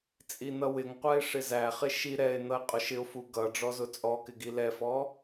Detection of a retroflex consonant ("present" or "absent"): present